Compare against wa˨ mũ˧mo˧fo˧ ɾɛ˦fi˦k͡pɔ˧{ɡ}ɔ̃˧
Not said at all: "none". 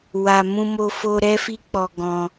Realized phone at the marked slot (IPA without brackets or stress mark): ɡ